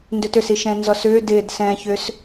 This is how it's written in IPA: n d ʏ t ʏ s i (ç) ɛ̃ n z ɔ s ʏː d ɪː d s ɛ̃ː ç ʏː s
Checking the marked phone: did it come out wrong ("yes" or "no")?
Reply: yes